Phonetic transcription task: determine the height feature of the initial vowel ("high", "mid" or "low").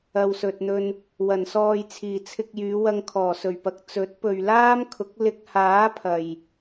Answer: low